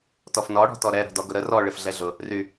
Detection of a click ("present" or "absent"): absent